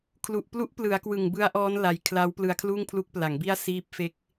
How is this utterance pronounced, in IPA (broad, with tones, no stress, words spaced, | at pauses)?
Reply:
kʰlu˨˩ʔplu˦˥ʔplɯ˩˦a̯ kwɯ˨˩ŋbɯ˦˥a̯ʔɔː˦˥n la˧j kʰlaː˦˥wplɯ˧a̯kʰluː˥˩ŋpʰlu˦˥k̚ pla˩˦ŋbi˥˩a̯ siː˦˥p̚fe˦˥k̚